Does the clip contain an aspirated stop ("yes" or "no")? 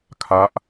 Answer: yes